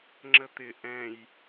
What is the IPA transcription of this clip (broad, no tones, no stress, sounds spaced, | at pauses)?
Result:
ŋ͡ǁ ə t̪ ɪ ʔ ɛ̃ j